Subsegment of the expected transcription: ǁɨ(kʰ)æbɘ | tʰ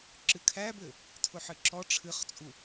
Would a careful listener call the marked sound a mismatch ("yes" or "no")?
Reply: no